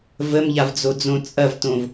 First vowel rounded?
no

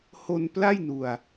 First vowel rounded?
yes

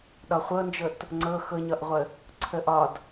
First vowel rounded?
yes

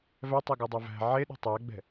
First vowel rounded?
no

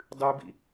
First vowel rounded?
yes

